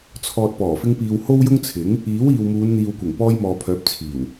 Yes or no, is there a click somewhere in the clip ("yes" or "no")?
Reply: no